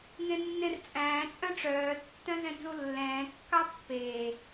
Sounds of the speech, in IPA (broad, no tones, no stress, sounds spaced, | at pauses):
ŋ ẽ nː ẽ r t͡sʼ æ̃ː t͡sʼ œ̃ ʈ͡ʂ œː tː œ̃ z ɛ̃ n z u lː ɛ̃ː kː ɑ pː eː